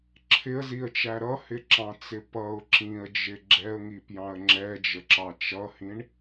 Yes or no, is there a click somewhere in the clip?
yes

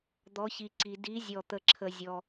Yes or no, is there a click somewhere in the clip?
yes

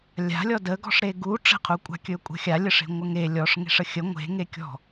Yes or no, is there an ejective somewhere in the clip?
yes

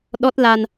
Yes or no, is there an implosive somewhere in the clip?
yes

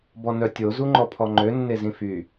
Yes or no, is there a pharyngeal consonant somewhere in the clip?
no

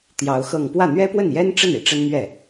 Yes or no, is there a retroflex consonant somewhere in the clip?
yes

